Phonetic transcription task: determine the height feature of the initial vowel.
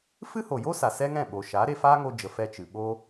high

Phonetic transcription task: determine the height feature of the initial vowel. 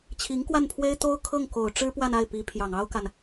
high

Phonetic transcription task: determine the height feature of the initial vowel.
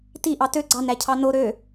high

